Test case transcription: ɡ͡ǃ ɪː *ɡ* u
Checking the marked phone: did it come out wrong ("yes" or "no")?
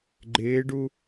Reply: yes